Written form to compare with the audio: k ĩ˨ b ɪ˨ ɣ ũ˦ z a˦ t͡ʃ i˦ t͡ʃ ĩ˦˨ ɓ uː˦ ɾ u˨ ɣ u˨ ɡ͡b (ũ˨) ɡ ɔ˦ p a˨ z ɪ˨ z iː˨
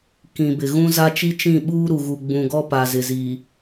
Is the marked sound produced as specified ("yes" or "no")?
yes